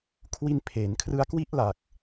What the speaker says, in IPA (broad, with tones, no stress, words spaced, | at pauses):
kʰwi˥˩n pʰeː˩˦n kʰrɯ˦˥a̯kwi˥˩ʔla˨˩k̚